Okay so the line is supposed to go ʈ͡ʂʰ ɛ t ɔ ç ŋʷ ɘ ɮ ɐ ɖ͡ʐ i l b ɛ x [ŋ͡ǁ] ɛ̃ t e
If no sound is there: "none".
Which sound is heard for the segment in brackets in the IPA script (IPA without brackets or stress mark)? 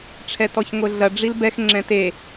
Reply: ŋ͡ǁ